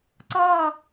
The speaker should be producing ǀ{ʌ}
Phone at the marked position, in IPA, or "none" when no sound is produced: ʌ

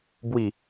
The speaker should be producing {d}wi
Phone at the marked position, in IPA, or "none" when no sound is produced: b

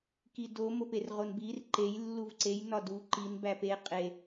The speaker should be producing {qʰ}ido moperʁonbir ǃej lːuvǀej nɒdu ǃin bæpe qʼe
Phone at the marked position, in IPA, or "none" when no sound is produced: k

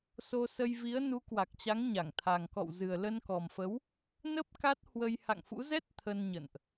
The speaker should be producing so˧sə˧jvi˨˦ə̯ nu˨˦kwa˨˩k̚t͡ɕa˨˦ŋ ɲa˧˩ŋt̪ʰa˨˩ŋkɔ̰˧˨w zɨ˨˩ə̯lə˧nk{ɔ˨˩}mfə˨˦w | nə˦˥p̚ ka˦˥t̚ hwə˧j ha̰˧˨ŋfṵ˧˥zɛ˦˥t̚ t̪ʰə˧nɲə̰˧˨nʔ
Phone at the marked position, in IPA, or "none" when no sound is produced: ɔ˨˩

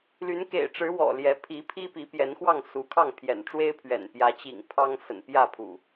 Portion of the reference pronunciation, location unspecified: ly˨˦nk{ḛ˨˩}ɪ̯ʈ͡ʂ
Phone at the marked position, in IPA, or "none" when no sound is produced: ḛ˨˩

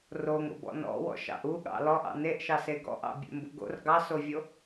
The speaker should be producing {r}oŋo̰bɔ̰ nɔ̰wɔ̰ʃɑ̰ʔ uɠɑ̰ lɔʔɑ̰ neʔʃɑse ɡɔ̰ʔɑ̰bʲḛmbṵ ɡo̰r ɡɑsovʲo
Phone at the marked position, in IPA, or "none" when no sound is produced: r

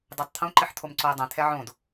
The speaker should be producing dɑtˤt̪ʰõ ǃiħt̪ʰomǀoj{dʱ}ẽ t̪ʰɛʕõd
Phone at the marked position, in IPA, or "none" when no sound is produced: dˤ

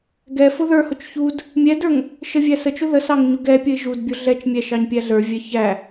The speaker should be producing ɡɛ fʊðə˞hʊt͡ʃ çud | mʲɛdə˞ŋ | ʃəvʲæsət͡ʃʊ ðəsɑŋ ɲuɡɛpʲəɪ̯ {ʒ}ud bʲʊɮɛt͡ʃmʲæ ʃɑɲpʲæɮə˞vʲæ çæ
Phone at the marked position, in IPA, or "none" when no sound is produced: ʒ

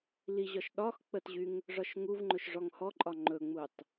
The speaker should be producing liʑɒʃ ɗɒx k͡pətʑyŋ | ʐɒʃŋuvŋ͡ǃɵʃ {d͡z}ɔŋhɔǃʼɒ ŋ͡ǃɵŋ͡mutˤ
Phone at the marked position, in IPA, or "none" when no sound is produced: ʐ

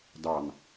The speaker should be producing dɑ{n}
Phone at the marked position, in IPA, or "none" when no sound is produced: n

